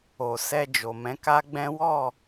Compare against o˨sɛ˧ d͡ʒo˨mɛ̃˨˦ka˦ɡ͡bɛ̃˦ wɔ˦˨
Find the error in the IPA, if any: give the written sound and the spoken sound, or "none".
none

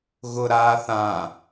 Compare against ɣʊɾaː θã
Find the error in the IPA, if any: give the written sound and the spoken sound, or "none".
none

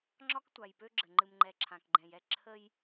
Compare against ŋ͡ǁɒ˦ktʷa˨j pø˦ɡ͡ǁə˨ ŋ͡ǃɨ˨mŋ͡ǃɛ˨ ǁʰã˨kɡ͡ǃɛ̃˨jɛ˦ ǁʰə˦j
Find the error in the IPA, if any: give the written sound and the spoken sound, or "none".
none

